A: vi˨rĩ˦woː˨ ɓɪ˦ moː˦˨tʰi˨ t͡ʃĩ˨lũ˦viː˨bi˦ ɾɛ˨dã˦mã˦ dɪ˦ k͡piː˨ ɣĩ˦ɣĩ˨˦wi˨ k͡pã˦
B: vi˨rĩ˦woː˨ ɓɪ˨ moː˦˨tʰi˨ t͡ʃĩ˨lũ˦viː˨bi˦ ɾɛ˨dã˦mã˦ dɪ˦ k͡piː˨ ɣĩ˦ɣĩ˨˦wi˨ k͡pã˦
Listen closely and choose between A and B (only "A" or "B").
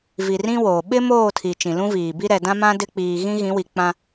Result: A